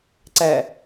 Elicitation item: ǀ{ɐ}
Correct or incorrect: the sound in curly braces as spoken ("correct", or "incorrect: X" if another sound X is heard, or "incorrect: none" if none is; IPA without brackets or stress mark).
incorrect: æ